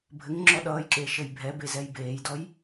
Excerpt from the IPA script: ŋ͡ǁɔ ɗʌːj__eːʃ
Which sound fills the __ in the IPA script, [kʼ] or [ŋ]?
kʼ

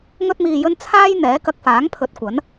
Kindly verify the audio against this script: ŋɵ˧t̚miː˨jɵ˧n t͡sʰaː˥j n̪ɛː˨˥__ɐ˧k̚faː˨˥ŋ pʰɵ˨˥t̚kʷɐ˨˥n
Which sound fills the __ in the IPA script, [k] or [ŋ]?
k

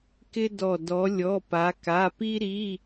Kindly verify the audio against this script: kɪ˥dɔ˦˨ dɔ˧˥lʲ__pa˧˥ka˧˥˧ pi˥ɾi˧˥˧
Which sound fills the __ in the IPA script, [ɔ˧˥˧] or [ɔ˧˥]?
ɔ˧˥˧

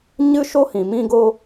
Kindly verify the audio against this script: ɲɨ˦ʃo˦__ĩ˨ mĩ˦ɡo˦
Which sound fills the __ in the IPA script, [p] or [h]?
h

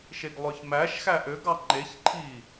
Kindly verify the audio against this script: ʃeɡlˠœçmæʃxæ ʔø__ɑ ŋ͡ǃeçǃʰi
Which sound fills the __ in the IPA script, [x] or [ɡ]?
ɡ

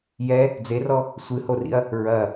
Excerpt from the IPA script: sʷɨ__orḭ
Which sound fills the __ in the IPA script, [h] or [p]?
h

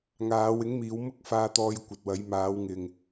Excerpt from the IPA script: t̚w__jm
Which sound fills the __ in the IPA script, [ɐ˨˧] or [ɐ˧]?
ɐ˨˧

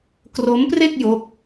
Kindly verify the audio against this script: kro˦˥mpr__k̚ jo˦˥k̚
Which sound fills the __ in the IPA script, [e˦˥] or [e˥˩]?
e˥˩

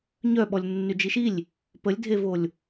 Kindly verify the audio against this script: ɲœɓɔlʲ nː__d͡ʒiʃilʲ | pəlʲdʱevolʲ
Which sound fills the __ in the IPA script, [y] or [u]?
y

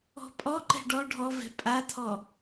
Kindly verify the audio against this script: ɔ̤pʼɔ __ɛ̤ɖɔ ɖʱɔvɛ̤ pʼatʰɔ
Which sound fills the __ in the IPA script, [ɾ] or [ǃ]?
ǃ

